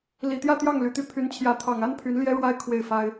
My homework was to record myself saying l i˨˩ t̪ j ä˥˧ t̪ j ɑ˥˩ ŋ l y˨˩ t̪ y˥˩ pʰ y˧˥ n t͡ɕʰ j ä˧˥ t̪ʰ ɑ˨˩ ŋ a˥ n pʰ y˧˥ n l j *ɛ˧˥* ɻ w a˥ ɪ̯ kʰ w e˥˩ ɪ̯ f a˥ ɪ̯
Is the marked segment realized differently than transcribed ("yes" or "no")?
yes